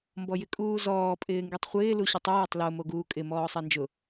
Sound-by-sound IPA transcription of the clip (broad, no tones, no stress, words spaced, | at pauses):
mbɔjɪkʼuːzɔː pʼɪːŋɡitˤχʷɪː luɕʊtˤo jɪtˤlo moɡuːkʼɪ mɔːsˤɛnd͡ʒʊ